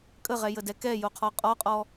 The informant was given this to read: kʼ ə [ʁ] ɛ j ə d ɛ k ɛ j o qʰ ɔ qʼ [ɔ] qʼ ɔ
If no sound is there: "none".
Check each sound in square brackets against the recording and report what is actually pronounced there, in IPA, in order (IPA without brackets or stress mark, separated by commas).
ʁ, ɔ